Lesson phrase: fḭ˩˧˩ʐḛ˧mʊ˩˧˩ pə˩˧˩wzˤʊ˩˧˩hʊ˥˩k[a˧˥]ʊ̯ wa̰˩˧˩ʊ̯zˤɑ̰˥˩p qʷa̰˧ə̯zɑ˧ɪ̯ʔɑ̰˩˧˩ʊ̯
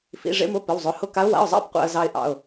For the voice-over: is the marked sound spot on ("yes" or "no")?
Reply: yes